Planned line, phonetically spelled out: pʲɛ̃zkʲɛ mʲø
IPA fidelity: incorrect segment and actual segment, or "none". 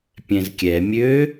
none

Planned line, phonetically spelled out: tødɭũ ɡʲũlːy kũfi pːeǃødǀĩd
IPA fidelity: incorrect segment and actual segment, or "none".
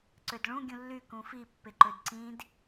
t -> ǀ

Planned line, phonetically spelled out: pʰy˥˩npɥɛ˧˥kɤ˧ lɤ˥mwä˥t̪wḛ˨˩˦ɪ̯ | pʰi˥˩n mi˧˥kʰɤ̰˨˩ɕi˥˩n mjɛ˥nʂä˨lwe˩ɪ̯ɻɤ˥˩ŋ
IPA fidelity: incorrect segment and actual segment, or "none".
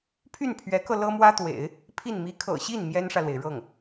p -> pʰ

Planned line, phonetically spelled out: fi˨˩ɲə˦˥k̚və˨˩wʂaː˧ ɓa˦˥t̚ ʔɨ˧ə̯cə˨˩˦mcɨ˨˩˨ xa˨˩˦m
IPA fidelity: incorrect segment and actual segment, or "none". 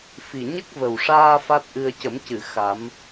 ɓ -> f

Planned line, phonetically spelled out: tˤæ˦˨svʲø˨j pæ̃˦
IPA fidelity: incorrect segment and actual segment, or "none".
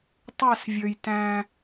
p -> t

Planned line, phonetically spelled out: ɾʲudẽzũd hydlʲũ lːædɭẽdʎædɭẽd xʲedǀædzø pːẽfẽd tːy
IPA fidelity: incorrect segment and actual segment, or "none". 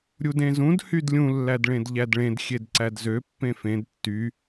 none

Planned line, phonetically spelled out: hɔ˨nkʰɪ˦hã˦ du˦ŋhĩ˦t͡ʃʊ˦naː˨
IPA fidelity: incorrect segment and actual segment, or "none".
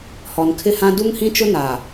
none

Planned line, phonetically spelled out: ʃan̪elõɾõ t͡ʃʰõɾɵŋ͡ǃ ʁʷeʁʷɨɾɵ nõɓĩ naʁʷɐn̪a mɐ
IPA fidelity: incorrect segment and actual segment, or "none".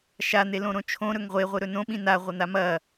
ŋ͡ǃ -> ŋ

